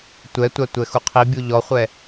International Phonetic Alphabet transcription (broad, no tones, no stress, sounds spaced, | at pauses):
tʷ ɛ tʷ a tʷ ɛ x u qʰ i bʲ u ʎ ɔ χʷ ɛ